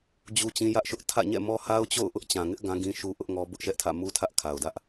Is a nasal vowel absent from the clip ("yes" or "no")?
no